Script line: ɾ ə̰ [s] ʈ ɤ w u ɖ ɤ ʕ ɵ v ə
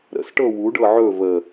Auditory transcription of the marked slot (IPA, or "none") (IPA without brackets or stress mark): s